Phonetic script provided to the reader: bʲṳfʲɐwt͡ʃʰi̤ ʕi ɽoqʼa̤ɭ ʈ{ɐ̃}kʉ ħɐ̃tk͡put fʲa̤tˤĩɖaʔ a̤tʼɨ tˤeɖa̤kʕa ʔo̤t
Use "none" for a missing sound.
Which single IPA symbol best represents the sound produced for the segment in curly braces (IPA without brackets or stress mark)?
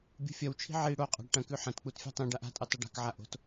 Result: ɐ̃